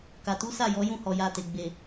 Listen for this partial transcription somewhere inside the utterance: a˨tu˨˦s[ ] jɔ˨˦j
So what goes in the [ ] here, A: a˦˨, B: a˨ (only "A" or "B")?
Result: A